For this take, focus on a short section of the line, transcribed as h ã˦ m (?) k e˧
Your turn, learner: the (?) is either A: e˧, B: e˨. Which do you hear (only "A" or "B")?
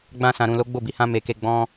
A